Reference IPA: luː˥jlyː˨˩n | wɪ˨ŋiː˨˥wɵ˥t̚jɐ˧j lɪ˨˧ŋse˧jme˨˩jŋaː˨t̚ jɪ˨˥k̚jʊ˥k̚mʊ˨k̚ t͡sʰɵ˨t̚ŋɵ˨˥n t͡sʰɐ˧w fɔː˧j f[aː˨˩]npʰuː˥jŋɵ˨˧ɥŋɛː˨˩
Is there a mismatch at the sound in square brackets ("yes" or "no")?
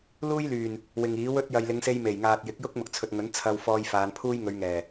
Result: yes